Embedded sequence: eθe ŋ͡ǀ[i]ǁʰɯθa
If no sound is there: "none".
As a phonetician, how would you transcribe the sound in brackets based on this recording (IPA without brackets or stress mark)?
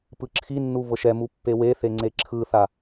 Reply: e